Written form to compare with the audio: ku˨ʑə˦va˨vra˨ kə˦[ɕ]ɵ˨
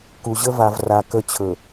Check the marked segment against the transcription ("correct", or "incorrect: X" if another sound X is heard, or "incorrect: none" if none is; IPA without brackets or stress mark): incorrect: t͡ɕʰ